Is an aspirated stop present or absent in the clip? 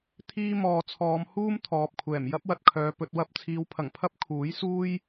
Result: present